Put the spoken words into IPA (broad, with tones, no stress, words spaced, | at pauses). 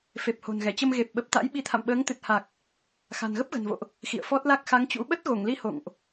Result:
fe˨˩p̚ho̤˨˩nɣɛ˧˩t͡ɕə˧m ɣe˨˩p̚ɓə˨˩p̚t̪a̰˧˥j ɓi˨˦t̪ʰa̰˧˨mɓəː˨˦ŋ t̪ɨ˨˩t̚ha˨˩k̚ | xa̤˨˩nɣə˦˥p̚ɣə̤˨˩nvo̰˧˨ʔ | xḭ˧˨ə̯fɔ˦˥t̚la˦˥k̚ xa˨˦ŋt͡ɕṵ˧˥ ɓə˦˥t̚ɣo˧˩ŋli˨˦ ho̰˧˨ŋʔ